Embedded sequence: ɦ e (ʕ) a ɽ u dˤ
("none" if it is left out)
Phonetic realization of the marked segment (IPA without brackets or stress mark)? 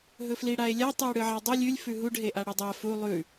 ʔ